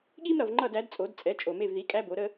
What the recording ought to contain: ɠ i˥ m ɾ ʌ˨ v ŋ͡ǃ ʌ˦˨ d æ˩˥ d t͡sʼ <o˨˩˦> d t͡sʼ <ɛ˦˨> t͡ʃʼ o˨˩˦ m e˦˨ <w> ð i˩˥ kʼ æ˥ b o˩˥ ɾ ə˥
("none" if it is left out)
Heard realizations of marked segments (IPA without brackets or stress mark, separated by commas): o˨˩˦, ɛ˩˥, v